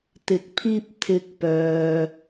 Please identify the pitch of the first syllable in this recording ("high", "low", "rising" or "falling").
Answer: rising